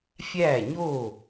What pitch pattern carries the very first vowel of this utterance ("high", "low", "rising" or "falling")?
falling